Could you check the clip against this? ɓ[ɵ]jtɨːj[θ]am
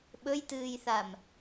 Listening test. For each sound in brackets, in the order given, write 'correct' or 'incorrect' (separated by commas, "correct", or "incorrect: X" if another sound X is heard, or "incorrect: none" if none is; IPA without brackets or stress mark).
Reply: correct, correct